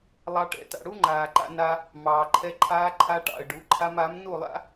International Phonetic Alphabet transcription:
lˠɑ˦ʈɛ̰˨˦ta̰˧ ɽu˦ ŋ͡ǃaː˨ǃa̰˧ na˧ | mɑː˨ǃʰɛ˧ ǃʰaː˧ ǃʰa˧ʈɑ̰˨ə̯ ɖu˨˦ ǃʰa˧ma˨˦mnu˦˨lˠa̰˦

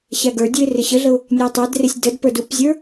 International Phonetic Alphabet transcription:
ɕæɡə˞dʲuɪ̯ rɪɕəɮəʊ̯ | nʲætˤædrɪsʲ dədpə˞d upzʲə˞

